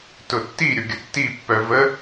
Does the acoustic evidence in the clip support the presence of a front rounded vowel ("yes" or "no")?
yes